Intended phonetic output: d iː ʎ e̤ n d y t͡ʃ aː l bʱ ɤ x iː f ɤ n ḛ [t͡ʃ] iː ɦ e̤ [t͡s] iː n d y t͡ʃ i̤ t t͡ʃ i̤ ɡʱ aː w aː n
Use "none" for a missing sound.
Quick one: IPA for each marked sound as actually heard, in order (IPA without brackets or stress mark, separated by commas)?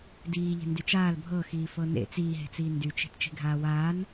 t͡s, t͡s